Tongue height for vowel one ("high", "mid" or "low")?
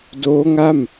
mid